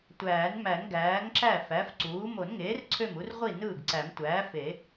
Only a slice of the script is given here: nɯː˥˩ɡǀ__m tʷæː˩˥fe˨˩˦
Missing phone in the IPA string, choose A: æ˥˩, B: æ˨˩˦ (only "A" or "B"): B